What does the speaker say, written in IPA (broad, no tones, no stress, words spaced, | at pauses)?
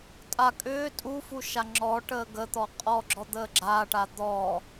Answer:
tʼa kʼʏː tʼufuʃa ŋ͡ǁɔʈəː ɡət̪ɔ qʼɔɡ͡ǁɔd̪əː ɡ͡ǁaːʈa d̪ɔː